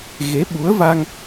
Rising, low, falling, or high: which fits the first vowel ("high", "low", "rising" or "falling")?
rising